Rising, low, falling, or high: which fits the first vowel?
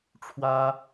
high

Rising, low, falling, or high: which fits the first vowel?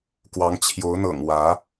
rising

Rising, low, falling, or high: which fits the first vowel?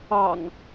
low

